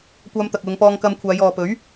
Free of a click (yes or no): yes